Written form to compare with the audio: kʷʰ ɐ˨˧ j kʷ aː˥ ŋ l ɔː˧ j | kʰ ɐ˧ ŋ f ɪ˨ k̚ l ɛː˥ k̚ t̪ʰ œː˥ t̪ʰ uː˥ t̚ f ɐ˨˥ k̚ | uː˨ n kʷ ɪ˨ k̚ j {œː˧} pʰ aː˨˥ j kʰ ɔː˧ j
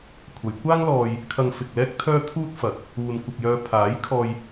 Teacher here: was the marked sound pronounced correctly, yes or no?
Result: yes